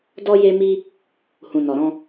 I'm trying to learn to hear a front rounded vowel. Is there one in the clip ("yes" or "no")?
no